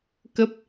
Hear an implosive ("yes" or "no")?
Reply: no